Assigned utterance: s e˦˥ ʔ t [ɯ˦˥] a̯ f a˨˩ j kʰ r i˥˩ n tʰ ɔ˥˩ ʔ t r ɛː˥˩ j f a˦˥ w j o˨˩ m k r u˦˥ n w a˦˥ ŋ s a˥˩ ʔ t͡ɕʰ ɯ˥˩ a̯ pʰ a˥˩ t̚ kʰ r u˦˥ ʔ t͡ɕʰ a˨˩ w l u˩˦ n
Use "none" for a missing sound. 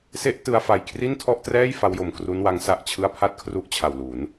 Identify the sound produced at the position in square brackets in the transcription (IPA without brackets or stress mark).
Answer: ɯ˦˥